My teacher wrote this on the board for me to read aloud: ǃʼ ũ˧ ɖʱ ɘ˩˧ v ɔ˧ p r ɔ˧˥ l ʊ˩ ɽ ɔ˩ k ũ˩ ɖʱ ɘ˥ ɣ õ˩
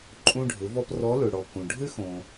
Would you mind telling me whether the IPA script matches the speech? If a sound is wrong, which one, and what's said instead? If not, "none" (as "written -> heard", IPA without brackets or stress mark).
ɣ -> x